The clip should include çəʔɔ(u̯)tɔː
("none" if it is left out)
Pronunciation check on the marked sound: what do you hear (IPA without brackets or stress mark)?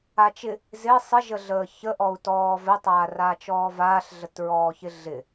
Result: u̯